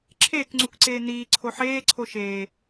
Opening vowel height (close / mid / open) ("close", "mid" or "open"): mid